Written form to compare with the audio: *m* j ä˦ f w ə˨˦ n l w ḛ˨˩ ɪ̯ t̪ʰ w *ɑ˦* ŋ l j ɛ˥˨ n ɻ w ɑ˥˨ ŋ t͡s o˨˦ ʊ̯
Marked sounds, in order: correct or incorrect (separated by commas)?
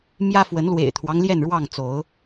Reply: correct, correct